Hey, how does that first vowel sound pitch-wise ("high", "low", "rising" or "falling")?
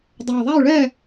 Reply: low